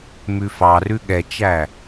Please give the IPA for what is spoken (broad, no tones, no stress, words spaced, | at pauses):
mʉfɑrʉ ɠɛt͡ʃæ